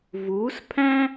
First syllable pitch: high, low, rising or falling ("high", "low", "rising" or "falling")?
rising